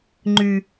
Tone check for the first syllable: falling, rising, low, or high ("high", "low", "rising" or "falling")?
low